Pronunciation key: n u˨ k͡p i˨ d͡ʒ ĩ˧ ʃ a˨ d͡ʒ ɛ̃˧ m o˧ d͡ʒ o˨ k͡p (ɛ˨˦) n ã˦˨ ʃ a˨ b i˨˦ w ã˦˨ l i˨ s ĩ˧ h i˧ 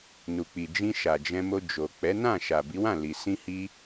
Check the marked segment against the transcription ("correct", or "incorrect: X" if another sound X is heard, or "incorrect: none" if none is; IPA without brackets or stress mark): correct